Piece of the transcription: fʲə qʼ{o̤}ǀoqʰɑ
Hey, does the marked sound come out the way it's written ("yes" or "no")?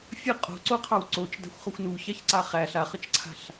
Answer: yes